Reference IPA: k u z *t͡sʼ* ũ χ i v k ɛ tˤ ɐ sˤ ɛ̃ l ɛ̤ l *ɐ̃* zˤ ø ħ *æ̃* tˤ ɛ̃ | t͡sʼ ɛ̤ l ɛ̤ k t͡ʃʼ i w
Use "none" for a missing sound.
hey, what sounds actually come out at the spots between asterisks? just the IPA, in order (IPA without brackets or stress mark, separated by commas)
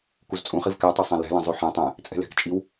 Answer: t͡sʼ, ɐ̃, ɛ̃